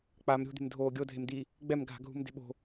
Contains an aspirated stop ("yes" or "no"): no